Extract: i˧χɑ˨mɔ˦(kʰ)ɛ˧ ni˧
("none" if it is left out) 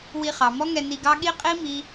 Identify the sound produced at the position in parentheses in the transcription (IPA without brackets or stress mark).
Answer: ŋ